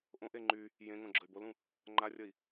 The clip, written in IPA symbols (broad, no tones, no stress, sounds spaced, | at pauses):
ʔ õ ʔ e ŋ͡ǃ y | j ẽ ŋ õ ɡ͡ǁ ə y̯ b o l ũ | ŋ͡ǃ a rʲ ə i̯